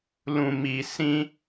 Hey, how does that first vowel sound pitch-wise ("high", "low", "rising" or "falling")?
low